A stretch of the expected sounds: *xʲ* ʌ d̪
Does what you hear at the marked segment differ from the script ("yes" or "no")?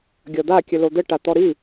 yes